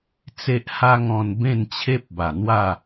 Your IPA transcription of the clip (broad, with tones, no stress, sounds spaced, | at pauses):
t͡s e˦ ʔ h a˦ ŋ ɔ̃˧ n b ẽ˥˧ n t͡ɕʰ e˦ p̚ b a˨˩ n̪ w a˥˧